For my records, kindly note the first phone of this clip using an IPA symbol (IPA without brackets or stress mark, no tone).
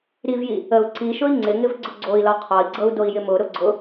ɾ